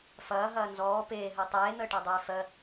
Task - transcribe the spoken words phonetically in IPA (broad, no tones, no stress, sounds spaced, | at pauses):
f ɐː ɦ ɐː n z ɔː p eː ɦ əː tˤ eː n̪ əː ʈ ɑ dˤ eː f ɜ